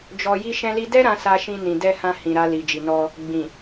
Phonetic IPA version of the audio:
d͡ʒ ɔ˧ j i˦ ʃ ɛ̃˦ l i˦ d ɛ˦ ɾ ã˧ s a˧ ʃ ĩ˧ n ĩ˨ d ɛ˧ h ã˧ h ĩ˨ ɾ a˧ l i˨ d͡ʒ i˨ n ɔ˧ | ɡ͡b ĩ˨

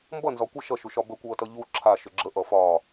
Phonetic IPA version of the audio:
m b ʌ n z ɒ kʷ ə ʃ ʌ ʃ u ʃ ɒ b ə kʷ ʌː t ʌ ʎ u ǁʰ a ʃ ʏ ɡ͡ǁ ə ʔ ʌ f ɒː

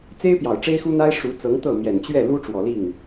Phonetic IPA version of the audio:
t͡s e˥ ɪ̯ p j ɑ˨˩ ʊ̯ ʈ͡ʂ e˥ ɪ̯ x u˥ n̪ a˥ ɪ̯ ʂ u˧˥ t͡s ɤ˧˥ ŋ t̪ ɤ˥˩ m j ɛ˨˩ n t͡ɕ ɥ ɛ˥˩ l u˥ ʈ͡ʂ w ɔ˨˩ l i˥˩ ŋ

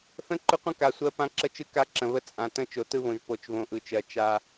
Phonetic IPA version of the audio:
θ ə̃˦ ǃ ʊ˦ qʷ ə̃˦ k a˨ sʷ ɜ˦ p ã˦ ǁ ə˦ t͡ʃ ɯ˦ k a˦ ǁ ə̃˨ β ə˦ t͡sʼ ã˨ t ə̃˦ t͡ʃ o˨ t ɯ˦ β õ˨ ʒ p o˨ t͡ʃ β õ˨ ʔ ɯ˨ t͡ʃ ɜ˨ t͡ʃ a˦

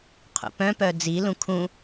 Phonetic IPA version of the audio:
qʰ ṵ p œ̃ p œ d͡z i l ũ kʰ ũ

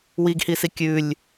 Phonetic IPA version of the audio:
w i ɡ h i s i kʲ ʉ lʲ

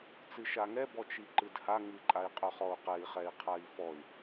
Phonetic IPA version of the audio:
t͡s ɨ ʃ a ŋ ɛ b ɔ t͡ʃ i ǃ ɨ d h a ŋ ɨ ǃʼ a i̯ qʼ œ χ ɔ u̯ q ɛ i̯ χ ɛ i̯ qʰ a i̯ f ɔ y̯

